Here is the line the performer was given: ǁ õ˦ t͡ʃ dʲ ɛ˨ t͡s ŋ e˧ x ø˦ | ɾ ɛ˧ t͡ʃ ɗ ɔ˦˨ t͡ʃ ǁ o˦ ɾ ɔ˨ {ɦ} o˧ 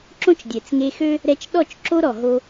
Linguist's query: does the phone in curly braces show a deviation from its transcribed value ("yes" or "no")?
no